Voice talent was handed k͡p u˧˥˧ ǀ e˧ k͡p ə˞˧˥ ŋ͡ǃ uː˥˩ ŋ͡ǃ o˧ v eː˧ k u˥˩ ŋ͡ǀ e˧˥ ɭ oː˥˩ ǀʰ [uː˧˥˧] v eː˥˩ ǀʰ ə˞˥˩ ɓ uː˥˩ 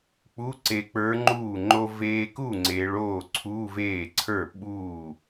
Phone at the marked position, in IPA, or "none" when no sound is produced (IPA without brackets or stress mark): uː˧˥˧